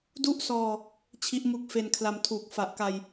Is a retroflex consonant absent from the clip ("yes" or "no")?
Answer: yes